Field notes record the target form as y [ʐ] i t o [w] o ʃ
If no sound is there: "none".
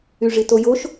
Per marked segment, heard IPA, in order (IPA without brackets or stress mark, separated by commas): ʐ, j